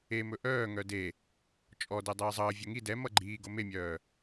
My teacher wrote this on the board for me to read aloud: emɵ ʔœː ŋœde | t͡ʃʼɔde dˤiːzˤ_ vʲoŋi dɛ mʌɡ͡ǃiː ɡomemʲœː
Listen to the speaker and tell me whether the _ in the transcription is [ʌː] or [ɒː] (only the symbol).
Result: ʌː